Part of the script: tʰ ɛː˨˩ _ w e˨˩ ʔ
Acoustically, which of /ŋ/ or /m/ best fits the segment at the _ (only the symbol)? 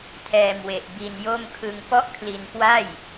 m